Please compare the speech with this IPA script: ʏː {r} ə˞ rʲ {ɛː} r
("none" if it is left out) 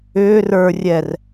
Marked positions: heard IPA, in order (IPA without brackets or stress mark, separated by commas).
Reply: r, ɛ